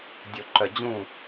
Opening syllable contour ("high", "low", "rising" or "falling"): low